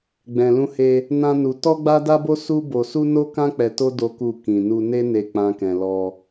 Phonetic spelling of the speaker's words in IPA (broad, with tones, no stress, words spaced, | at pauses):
ɡ͡bɛ̃˨lũ˧he˧ | nã˦nu˧ tɔ˦ɡ͡ba˦da˦bo˦ su˦bo˧su˦ no˦kã˦ k͡pɛ˧to˦ do˦ku˦˨ kĩ˨nu˧ ne˦ne˧ k͡pã˦kɛ̃˧ lɔ˧